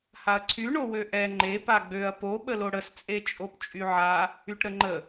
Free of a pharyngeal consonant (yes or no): no